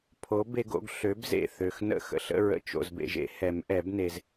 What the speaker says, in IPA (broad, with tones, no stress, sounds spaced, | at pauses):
pʰ o˨˥ b e˦ ɡ o̰˦ ɡ ɬ ø˨˥ b z ḛ˥˩ θ ø˨ x n ə̰˥˩ x ə̰˨ ɬ ə̰˦ ɹ ə̰˨ t͡ʃ o̰˨ z b ḛ˨ ʒ ḛ˦ h ɛ˨˩˦ m ʔ ɛ˨˩˦ b n e˨ z